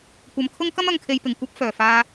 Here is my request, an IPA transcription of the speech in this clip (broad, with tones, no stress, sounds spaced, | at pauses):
kʷ ɐ˧ m kʰ ʊ˥ ŋ k ɐ˥ m ɐ˨˧ ŋ kʰ e˨˧ j p ɪ˨˩ ŋ kʷ ɐ˥ p̚ f œː˨˩ f aː˧